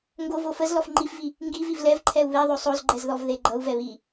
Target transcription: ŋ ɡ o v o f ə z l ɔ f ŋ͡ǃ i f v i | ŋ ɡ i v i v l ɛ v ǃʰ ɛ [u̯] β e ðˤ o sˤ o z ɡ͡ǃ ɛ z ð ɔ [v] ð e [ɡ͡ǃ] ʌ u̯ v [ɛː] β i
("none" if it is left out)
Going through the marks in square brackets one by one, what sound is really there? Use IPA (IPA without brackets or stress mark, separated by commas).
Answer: u̯, v, ɡ͡ǃ, ɛ